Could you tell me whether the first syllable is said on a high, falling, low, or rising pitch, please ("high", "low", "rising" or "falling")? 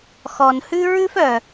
low